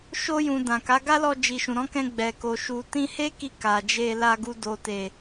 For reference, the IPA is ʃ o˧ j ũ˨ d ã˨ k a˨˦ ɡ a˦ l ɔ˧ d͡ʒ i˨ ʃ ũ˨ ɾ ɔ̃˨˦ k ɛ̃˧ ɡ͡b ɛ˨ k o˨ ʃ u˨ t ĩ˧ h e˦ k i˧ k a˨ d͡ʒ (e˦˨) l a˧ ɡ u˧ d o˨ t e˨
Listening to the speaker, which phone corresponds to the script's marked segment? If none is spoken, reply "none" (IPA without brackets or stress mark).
e˧